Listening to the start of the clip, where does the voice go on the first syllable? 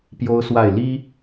high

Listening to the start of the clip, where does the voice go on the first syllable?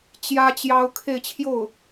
high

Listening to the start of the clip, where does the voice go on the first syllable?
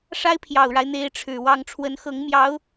high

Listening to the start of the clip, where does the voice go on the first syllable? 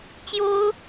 high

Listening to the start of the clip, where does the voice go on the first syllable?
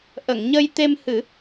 low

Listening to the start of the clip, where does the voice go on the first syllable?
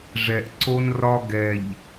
low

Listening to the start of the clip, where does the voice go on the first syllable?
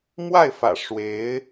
falling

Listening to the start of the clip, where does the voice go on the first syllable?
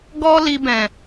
high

